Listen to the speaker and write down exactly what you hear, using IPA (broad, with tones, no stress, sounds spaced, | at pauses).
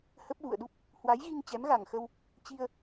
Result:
h ə˦˥ p̚ ɣ ṵ˧˨ ə̯ ɗ u˦˥ p̚ | h w a˨˦ j ɣ i˧ ŋ t͡ɕ ɛ˨˦ m ɣ a˨˩ ŋ x ə˧ w | t͡ɕ i˧ ə̯